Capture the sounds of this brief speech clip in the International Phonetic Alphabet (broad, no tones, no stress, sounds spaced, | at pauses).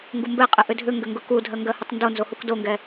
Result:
ŋ ɡ u m b ɛ qʼ ɨ ʔ ʏ dʱ ʏ ŋ ɡ ʏ ŋ ɡ ʊ k u dʱ ɜ ŋ ɡ ɜ h ɨ tˤ n d o n z o h u k d o ŋ ɡ ɛ